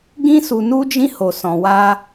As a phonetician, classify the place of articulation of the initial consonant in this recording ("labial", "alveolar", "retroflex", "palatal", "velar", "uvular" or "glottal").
velar